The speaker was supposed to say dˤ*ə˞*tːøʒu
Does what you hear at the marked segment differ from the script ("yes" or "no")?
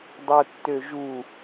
no